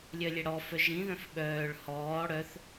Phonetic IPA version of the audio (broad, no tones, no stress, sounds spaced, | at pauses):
lʲ œ lʲ ɛ ɽ ɔ f œ ʒ ĩ ð œ̃ f ɓ œː ɭ h ɔː ɽ œ θ